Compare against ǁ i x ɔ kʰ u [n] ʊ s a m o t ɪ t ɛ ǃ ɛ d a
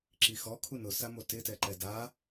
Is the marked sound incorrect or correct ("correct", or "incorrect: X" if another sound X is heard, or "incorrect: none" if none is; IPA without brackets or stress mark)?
correct